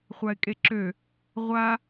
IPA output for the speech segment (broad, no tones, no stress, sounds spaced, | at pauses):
χʷ a ɪ̯ kʼ e ǁ ø | ʁʷ a